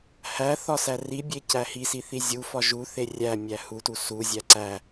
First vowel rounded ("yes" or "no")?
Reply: no